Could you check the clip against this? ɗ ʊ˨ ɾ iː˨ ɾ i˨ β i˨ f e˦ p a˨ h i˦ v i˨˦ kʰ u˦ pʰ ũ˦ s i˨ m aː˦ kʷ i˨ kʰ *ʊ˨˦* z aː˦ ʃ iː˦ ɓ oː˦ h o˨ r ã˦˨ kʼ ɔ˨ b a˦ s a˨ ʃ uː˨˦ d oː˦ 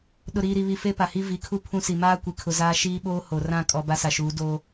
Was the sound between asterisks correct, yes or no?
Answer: no